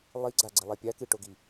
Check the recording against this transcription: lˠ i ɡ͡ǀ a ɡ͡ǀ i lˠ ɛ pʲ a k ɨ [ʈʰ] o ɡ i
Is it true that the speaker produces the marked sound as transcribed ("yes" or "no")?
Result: no